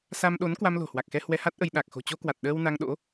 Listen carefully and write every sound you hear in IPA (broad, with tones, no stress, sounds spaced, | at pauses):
s a˧ m ɗ o˨˦ n k w a˧ m l o̤˨˩ h w a˨˩ k̚ x ɛ˧ h w ɛ˧ h a˦˥ t̚ ʔ ə˧ j ɗ a˨˩ k̚ x o̤˨˩ t͡ɕ o˧ k w a˨˩ t̚ ɗ əː˧ w n a˧ ŋ ɗ o̰˧˥